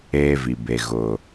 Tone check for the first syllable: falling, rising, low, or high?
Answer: high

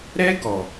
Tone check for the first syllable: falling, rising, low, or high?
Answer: high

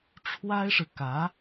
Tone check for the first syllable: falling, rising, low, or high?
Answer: high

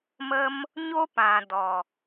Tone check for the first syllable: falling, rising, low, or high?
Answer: high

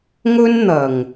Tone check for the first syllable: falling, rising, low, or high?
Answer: high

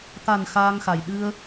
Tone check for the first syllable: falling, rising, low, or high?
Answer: low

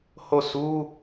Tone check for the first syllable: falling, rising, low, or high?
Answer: falling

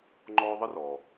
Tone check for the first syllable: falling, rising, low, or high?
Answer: high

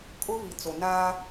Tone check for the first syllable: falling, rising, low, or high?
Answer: high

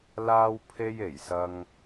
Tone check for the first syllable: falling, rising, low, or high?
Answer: high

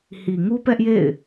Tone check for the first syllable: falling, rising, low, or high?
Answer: low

